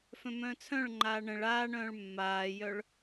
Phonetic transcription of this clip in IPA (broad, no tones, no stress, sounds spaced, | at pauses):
f œ̃ m œ̃ː t͡sʰ œ̃ ɭ ŋ͡ǃ aː ɳ ə̃ ɭ aː ɳ œ̃ː ɭ mː aː j œ ɭ